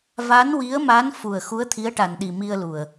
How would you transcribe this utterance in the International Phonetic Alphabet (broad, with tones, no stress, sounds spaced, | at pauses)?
v a˧˥ n w i˧˥ ə̯ m a˧˥ n f u˨˩ ə̯ x u˧˥ ə̯ t̪ʰ i˧˥ ə̯ ʈ a˨˩ n ɗ i˨˩ m i˧ ə̯ l u˨˩ ə̯